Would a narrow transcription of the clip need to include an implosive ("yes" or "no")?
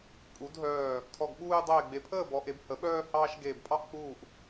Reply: yes